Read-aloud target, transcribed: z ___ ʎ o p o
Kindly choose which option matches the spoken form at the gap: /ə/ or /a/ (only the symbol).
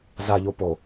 a